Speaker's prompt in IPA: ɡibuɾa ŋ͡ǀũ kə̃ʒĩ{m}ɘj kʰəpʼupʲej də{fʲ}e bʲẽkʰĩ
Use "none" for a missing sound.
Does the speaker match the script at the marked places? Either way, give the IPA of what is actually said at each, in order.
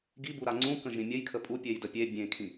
mʲ, pʲ

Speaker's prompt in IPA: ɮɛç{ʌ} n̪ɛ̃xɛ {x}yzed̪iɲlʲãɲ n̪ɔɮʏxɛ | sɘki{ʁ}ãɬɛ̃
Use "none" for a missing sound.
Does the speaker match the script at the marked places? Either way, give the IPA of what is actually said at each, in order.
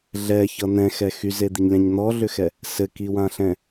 ʌ, x, w

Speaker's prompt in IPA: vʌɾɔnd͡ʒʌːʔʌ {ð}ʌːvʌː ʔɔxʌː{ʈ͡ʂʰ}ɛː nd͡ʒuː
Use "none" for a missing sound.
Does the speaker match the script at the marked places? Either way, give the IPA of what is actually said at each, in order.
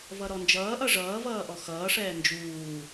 ʐ, ʂ

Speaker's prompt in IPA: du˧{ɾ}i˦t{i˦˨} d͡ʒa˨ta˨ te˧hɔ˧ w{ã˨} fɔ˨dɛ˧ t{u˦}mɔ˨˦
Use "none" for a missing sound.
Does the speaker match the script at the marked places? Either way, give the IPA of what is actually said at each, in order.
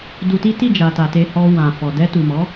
t, i˦˨, ã˨, u˨

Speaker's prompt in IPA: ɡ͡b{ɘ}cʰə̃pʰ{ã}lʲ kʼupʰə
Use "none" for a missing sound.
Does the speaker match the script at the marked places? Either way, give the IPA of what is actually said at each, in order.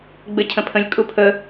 ɘ, ə̃

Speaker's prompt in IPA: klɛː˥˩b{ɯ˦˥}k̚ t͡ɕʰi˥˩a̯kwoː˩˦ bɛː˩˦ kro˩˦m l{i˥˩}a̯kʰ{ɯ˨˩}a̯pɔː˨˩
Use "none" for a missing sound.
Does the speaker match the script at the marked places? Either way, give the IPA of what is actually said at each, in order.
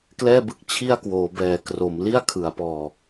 ɯ˦˥, i˥˩, ɯ˩˦

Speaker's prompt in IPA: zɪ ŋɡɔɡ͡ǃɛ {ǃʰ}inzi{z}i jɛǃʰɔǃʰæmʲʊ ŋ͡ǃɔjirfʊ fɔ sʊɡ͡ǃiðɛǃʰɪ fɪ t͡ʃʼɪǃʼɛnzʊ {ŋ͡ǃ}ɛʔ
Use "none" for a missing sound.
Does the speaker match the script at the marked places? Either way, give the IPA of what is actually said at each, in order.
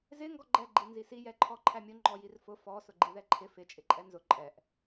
ɡ͡ǃ, s, ǃʼ

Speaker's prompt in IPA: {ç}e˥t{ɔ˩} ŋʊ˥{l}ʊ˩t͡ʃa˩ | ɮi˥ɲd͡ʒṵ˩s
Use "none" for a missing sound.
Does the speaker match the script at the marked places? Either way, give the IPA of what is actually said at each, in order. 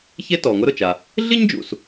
ç, ɔ˩, ɾ

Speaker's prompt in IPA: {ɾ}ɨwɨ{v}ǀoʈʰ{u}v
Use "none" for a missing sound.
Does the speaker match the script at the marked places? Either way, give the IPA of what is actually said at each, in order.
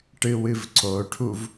ʈ, v, u

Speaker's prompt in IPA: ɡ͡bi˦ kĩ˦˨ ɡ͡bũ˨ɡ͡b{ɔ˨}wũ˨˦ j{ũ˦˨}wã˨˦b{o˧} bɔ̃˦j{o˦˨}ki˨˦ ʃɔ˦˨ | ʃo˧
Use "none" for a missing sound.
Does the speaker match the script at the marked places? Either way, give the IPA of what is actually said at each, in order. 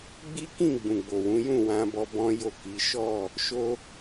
o˨, ũ˦˨, ɔ˧, o˦˨

